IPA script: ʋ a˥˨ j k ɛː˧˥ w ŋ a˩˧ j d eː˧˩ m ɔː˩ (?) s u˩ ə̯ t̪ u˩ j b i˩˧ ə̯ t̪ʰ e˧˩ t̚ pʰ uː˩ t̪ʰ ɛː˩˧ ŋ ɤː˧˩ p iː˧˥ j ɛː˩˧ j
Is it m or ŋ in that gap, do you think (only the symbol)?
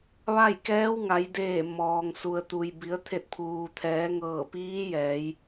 ŋ